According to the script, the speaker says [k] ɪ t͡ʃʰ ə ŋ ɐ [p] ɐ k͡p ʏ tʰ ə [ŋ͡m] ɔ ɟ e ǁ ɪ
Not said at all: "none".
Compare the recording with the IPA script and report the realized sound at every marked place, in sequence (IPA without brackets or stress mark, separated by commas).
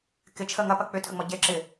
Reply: k, p, ŋ͡m